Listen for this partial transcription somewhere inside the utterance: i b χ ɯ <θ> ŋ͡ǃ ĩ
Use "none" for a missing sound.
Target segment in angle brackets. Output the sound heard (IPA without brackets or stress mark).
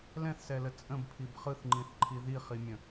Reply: θ